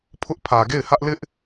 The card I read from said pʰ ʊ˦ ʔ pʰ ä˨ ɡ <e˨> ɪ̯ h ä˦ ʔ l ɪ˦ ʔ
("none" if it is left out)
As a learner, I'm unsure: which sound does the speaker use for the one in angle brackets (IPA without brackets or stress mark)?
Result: e˦˨